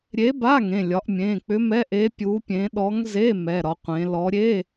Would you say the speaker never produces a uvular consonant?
no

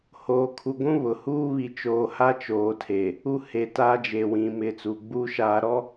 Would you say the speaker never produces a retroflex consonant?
yes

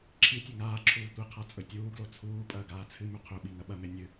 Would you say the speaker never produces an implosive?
no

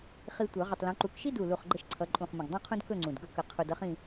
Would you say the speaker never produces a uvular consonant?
no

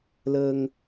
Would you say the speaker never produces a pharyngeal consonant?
yes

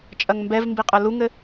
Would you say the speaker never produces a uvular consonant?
no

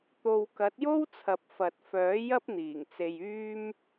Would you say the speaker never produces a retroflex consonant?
yes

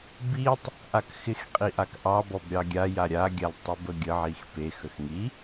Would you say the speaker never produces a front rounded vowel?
yes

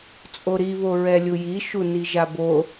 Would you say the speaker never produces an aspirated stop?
yes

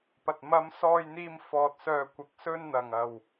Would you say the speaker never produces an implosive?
yes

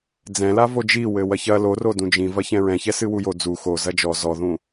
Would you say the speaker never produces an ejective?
yes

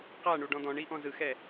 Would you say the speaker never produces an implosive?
yes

